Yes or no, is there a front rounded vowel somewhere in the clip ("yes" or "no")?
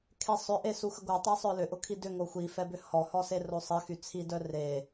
yes